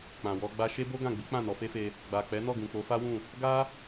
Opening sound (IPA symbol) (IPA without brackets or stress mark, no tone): k͡p